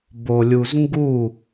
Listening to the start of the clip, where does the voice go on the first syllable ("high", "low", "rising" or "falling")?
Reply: low